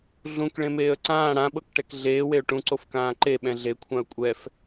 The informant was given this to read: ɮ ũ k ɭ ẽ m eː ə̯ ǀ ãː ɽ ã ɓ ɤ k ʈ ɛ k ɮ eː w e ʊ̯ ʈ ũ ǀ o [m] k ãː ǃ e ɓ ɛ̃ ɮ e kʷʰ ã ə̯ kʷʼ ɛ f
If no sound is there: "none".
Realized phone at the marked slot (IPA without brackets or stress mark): f